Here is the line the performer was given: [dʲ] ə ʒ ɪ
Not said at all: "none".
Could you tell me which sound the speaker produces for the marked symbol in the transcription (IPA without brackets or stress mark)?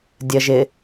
dʲ